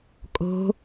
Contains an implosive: no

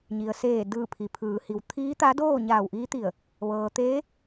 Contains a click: no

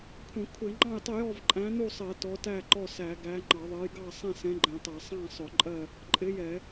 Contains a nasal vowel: yes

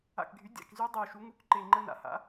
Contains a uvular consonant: no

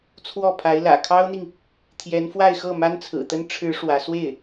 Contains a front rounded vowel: no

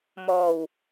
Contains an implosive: no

